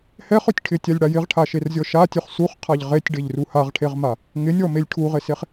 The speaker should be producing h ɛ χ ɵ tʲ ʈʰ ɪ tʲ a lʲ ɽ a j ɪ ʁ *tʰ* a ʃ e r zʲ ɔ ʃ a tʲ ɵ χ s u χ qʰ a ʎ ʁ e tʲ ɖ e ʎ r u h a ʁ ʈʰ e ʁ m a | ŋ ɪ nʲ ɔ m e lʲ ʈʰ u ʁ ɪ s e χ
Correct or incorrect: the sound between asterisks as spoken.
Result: incorrect: ʈʰ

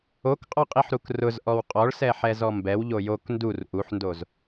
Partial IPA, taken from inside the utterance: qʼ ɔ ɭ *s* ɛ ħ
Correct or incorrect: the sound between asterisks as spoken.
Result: correct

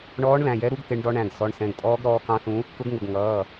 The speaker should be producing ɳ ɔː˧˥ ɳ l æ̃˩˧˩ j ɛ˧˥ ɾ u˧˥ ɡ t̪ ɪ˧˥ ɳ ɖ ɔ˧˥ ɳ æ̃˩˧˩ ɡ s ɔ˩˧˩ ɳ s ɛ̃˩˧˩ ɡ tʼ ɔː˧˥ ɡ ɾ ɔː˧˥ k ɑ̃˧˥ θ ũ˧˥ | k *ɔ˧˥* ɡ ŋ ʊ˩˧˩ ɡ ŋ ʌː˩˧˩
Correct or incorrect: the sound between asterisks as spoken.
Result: incorrect: ʊ˧˥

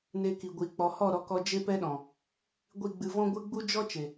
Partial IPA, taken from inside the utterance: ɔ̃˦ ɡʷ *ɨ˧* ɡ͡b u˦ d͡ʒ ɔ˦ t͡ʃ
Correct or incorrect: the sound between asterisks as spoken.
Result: incorrect: ɨ˦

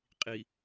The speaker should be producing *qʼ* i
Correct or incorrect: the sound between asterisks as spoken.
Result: correct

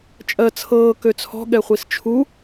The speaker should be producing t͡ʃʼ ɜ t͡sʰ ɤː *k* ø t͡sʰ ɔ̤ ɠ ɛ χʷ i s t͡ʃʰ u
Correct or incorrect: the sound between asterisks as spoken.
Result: correct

